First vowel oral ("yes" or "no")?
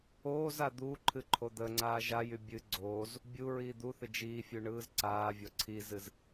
yes